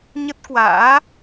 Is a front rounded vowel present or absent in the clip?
absent